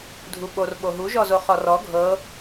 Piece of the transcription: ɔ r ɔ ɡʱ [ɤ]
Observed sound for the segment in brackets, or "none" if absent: ɤ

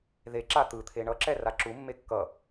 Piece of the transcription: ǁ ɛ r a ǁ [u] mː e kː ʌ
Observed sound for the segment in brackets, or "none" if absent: u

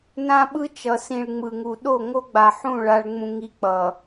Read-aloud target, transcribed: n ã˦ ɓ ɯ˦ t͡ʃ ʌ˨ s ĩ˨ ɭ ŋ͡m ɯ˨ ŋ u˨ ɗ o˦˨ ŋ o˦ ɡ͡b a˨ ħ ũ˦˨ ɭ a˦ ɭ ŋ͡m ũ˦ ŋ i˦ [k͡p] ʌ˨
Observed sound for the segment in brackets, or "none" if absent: k͡p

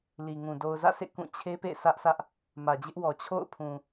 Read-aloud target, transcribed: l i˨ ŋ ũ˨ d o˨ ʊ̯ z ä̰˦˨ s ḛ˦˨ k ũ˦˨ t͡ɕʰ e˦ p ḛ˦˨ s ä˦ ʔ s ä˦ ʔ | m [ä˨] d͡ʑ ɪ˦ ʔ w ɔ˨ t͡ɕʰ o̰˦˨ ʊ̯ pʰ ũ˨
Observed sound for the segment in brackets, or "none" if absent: ä˨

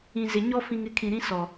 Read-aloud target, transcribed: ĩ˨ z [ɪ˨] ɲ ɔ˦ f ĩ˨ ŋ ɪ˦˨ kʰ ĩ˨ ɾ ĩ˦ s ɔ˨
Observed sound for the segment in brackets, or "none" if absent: ɪ˨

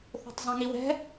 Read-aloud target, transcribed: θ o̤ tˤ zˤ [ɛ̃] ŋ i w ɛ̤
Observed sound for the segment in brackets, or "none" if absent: ɛ̃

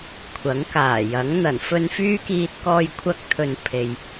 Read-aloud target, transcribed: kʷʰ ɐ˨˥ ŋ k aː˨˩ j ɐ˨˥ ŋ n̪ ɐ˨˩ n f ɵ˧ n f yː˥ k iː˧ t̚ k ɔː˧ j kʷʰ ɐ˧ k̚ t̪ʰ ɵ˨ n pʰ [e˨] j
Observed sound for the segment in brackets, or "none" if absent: e˨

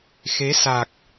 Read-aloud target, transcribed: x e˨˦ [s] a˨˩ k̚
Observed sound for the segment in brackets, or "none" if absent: s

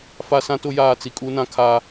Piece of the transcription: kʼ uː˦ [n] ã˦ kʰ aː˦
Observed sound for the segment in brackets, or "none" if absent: n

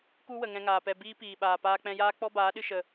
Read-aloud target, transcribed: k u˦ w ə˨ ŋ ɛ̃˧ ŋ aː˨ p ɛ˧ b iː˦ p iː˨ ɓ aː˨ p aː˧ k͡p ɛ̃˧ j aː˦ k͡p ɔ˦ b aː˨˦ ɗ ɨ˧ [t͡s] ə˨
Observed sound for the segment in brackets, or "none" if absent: ʃ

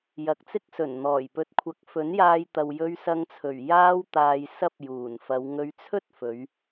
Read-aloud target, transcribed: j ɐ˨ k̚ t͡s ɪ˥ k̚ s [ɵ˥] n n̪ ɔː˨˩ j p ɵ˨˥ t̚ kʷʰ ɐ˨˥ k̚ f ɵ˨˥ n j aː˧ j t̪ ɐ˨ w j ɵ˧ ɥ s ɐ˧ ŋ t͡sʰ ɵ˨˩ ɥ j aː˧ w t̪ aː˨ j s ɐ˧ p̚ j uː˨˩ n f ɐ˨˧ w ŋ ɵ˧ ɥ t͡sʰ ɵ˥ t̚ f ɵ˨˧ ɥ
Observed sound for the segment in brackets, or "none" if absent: ɵ˨˩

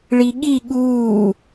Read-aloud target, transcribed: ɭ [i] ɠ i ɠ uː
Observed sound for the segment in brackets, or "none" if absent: i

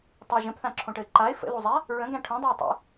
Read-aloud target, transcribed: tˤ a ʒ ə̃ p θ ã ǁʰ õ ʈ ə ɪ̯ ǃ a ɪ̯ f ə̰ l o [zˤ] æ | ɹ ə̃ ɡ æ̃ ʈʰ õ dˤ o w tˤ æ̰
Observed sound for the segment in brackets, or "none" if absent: zˤ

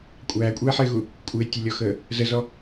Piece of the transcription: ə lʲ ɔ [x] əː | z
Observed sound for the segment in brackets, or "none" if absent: x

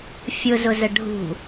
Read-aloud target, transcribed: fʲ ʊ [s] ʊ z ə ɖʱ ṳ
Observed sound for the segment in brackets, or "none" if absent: z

